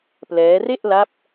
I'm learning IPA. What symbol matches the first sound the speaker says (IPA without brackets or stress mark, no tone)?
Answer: p